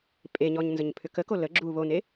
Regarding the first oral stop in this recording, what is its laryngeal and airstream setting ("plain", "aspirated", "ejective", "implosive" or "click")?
ejective